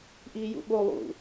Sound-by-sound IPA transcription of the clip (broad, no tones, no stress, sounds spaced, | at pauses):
ʔ iː j ṵ ɓ o lˠ ṵ